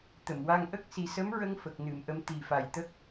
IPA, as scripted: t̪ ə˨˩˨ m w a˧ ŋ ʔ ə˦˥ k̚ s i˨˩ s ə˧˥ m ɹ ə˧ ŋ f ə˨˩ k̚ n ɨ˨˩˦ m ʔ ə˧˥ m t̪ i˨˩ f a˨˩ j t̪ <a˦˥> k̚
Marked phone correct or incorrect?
incorrect